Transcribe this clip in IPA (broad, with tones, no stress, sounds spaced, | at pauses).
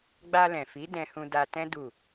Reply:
ɡ͡b a˧ l ɛ̃˨ f i˨˦ d ɛ̃˧ h ũ˧ d a˧ t ɛ̃˦ d u˦˨